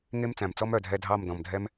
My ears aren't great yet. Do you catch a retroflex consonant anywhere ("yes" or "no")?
no